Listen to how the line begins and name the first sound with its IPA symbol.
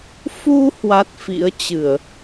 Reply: f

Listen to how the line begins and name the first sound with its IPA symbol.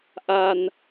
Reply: ʔ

